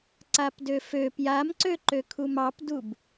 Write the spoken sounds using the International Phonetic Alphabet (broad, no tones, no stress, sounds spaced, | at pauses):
ǀ a p d ø f ø p j a m ǀ ø ǃ ø kʰ u m ɑ p d u b